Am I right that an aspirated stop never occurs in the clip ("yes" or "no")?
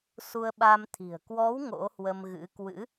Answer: no